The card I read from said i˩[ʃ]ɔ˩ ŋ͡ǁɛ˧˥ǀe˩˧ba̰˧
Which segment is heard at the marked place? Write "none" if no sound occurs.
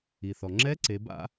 θ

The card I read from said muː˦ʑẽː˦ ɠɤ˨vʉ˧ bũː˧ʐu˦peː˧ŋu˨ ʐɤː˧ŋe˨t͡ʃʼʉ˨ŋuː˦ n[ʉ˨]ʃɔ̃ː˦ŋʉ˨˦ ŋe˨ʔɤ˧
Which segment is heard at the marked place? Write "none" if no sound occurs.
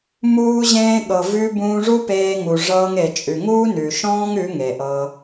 ʉ˨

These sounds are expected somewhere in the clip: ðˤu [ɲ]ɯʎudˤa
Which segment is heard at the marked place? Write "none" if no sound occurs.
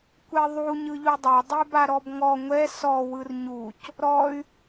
ɲ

